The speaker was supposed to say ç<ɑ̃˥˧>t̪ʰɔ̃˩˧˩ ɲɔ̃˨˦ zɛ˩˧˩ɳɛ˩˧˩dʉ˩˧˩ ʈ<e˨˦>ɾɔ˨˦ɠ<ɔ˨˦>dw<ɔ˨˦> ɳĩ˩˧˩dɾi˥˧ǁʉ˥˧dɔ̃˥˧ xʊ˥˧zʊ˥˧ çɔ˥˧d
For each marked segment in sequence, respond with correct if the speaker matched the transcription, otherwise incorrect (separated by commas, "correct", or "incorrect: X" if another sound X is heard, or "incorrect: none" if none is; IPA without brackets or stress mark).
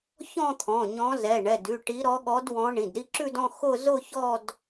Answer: incorrect: ɔ̃˥˧, incorrect: i˨˦, correct, incorrect: ɔ̃˨˦